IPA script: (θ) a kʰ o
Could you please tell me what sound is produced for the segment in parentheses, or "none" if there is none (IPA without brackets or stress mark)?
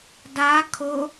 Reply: d